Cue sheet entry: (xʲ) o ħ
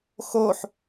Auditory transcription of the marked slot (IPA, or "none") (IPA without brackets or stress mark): x